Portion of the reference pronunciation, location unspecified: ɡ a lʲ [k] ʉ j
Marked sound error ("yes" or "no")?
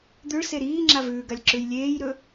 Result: yes